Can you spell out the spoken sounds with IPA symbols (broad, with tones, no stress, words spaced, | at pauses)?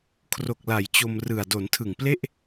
kʰro˨˩k̚la˩˦j t͡ɕo˧mrɯ˨˩a̯ do˩˦ntʰɯ˨˩ŋple˥˩ʔ